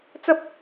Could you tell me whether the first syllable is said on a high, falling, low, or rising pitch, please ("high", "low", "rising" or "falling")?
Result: high